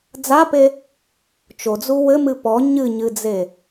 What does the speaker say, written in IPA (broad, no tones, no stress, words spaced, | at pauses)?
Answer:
d͡zape | t͡ʃod͡zu wɘmɨ pɔ ɲɨɲɨd͡ze